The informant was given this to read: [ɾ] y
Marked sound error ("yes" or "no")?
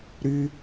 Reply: no